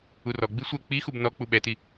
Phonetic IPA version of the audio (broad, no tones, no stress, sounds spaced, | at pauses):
u r ɔ ɡ͡b i sʷ ɛ k͡p i x u b n ɔ k͡p u ɓ ɛ t i